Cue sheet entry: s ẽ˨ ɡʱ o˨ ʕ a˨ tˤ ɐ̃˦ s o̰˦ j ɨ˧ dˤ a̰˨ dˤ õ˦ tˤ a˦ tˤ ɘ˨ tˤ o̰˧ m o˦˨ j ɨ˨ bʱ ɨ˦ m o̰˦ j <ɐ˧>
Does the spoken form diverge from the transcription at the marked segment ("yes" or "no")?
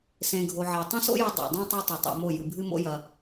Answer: no